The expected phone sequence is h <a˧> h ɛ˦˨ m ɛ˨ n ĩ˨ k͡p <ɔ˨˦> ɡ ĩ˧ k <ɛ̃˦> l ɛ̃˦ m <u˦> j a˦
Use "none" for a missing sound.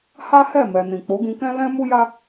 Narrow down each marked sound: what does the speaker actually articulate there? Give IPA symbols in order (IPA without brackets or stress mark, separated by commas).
a˦, o˨˦, ɛ̃˦, u˦